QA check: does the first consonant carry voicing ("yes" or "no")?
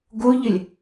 yes